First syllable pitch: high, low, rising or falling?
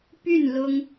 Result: falling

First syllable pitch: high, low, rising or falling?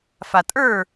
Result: low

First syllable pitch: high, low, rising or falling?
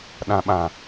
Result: low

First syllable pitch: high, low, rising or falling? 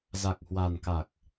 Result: low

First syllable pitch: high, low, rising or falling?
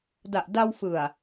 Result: low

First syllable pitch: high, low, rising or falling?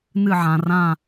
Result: falling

